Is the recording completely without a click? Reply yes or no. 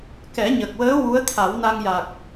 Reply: yes